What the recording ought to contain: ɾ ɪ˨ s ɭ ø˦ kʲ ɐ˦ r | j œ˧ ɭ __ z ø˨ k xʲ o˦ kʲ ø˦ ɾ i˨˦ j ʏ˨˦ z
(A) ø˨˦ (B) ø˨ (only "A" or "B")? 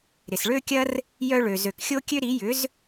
B